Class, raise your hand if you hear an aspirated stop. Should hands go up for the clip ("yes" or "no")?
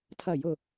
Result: yes